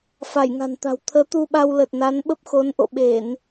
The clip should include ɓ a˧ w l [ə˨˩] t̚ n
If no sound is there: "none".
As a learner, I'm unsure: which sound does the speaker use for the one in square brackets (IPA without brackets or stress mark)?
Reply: ə˨˩